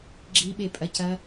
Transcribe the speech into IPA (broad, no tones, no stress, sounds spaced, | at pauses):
ɡ͡ǁ i ɓ e pʼ ɐ c ɐ